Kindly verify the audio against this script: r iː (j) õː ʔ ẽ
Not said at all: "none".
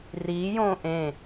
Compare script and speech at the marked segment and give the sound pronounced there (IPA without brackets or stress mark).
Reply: j